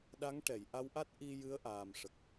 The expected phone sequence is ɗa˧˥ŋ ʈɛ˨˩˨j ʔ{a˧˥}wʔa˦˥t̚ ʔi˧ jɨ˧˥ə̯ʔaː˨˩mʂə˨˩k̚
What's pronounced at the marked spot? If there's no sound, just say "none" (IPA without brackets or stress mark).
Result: a˧˥